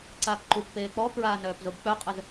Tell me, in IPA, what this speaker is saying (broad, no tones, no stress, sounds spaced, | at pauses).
ǀ aː k ǃ u k p eː k͡p ɔ k ɹ aː n œː p z o b k͡p œ qʼ ə z